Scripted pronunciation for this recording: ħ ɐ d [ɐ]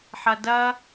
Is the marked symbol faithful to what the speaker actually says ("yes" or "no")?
yes